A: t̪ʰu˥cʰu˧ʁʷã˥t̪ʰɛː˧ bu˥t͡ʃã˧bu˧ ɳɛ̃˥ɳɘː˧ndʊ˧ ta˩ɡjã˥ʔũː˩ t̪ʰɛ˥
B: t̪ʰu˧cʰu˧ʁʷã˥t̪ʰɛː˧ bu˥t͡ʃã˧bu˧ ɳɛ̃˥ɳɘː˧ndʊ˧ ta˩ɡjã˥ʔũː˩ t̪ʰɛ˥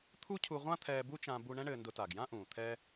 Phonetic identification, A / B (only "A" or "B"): A